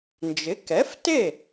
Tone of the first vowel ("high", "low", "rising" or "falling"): rising